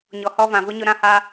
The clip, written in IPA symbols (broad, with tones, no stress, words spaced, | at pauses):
ɲɔ˨hɔ˧vã˨vʊ˦ ɲʊ˦ɾã˦ha˦